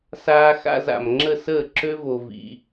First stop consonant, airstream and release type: click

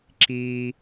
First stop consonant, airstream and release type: click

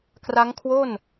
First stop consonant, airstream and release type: plain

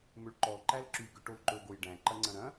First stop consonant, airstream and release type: click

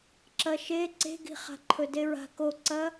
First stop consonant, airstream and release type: click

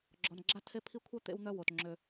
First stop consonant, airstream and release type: click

